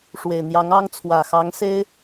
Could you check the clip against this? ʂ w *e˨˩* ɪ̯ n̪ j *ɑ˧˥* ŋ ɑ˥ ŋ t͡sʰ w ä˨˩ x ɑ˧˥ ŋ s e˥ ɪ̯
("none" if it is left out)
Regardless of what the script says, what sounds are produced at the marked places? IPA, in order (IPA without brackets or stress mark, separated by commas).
e˨˩, ɑ˧˥